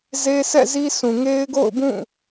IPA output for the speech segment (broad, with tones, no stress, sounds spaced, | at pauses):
z e˦ sʰ ɛ̰˦˨ z i˦ s ũ˨ ŋ e˦ ɪ̯ ɡ o̰˦˨ ʊ̯ b ũ˦˨